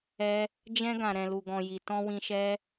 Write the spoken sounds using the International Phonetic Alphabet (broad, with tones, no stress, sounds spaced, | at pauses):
ɛ˧ | d͡ʒ ɛ̃˧ ɡ ã˨ ɾ ɛ̃˨ l u˨ ɡ ɔ̃˨ j i˨ t ɔ̃˧ w ĩ˧ ʃ ɛ˦